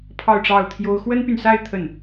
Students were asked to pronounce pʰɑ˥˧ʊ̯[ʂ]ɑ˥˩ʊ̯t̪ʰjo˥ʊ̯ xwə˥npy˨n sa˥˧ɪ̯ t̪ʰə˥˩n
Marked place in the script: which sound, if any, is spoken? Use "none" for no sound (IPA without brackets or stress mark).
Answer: ʈ͡ʂ